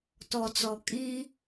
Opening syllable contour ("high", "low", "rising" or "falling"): low